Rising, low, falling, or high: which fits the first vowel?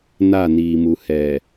falling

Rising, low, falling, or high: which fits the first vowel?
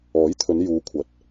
rising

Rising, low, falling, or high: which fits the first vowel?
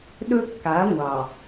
high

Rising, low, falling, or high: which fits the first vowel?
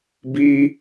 high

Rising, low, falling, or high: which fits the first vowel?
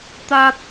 high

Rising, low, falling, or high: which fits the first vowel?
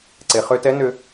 low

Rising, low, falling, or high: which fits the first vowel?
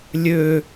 falling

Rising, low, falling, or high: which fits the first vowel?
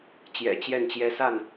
low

